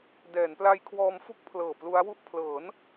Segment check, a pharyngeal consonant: absent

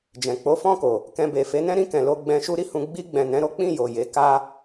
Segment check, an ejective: absent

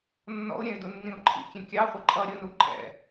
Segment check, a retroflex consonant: absent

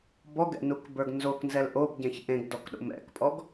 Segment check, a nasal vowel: present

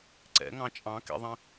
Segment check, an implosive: absent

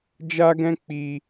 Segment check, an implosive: absent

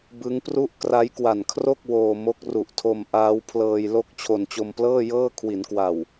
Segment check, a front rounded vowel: absent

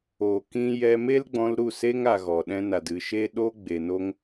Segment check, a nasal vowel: present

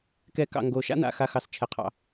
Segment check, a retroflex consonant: absent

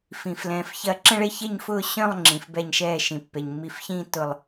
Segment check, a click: present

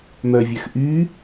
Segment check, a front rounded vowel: present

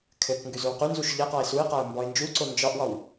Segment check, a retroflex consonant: absent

